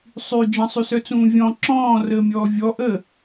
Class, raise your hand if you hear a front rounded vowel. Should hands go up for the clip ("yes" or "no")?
yes